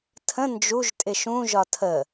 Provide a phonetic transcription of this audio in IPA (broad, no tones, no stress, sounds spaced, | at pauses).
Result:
tʰ ə̃ n d͡ʒ u ʒ tʼ ɪ ʃ ũ ʒ ɒ tʰ ə